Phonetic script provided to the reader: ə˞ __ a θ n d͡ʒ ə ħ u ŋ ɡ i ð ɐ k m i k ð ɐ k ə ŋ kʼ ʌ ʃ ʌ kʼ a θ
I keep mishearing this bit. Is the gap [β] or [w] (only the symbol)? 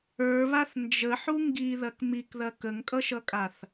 β